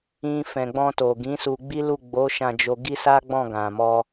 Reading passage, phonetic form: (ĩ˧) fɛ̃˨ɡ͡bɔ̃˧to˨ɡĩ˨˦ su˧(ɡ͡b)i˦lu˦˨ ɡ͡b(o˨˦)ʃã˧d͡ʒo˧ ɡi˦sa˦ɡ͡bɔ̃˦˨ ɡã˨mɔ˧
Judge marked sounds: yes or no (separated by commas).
yes, yes, yes